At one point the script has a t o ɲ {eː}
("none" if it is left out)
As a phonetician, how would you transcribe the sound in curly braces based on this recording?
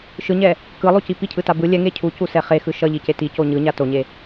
e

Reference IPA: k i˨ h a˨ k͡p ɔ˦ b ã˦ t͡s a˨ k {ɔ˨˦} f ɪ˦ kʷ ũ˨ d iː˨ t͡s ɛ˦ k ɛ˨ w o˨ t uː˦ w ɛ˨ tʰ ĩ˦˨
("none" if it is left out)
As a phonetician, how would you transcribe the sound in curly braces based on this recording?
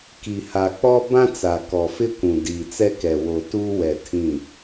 ɔ˨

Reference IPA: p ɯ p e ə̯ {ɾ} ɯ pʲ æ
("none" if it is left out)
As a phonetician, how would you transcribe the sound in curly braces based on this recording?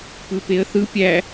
θ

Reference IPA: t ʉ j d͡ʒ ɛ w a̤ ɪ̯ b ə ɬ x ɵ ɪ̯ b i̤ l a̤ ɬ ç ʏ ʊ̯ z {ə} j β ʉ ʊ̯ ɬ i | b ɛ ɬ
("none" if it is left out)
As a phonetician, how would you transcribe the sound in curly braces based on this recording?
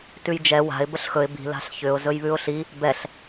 ɵ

